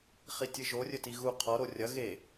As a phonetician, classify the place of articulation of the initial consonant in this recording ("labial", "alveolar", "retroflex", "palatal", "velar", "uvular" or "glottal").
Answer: uvular